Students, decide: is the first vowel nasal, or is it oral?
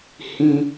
nasal